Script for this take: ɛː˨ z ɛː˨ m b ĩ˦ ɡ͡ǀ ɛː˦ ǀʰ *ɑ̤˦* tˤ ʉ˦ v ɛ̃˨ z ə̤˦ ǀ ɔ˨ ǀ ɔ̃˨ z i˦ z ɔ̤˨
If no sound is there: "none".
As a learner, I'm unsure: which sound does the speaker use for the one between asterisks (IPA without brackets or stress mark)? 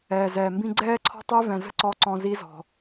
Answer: ɔ̤˦